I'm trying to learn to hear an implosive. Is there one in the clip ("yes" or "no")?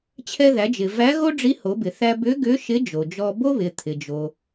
no